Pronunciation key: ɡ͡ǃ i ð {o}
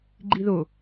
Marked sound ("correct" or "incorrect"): correct